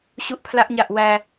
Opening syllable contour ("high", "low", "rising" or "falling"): high